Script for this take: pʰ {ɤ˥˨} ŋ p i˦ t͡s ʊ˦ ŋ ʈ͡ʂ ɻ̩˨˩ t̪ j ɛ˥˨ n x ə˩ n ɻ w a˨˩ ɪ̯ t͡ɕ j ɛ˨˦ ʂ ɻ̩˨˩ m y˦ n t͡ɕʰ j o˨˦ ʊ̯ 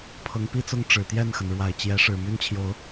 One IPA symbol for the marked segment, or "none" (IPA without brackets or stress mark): ɤ˨˦